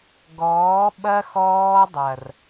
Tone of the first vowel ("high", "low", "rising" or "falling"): rising